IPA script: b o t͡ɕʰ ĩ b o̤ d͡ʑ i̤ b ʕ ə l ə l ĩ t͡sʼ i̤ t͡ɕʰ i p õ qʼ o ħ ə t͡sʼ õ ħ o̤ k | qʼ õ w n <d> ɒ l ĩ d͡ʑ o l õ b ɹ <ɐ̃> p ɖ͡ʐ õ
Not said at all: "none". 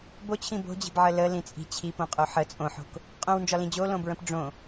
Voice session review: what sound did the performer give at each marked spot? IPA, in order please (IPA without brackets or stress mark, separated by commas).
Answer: d͡ʒ, ə̃